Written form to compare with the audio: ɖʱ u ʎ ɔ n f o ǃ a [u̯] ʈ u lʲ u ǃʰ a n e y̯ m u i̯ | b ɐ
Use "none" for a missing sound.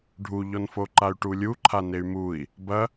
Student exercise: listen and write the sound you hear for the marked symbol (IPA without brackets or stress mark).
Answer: y̯